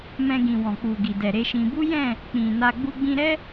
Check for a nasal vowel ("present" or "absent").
present